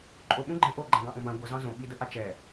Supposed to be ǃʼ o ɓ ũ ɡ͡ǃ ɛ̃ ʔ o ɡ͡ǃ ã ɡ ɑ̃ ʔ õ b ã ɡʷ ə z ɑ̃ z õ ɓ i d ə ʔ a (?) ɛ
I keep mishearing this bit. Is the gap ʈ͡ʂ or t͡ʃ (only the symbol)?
t͡ʃ